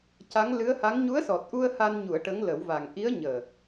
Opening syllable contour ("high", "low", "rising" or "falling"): rising